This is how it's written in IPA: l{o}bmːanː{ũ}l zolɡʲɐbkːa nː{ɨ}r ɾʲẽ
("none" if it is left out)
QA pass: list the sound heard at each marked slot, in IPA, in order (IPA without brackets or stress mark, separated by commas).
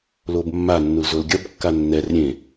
o, u, ɛ